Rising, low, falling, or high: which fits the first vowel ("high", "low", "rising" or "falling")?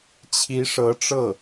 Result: rising